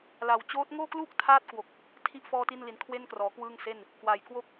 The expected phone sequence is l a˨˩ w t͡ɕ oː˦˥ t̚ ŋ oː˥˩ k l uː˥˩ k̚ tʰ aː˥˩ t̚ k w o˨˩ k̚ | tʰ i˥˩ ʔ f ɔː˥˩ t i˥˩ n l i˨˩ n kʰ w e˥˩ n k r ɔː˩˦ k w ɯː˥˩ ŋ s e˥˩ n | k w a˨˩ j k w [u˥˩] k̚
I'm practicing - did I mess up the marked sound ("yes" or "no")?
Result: yes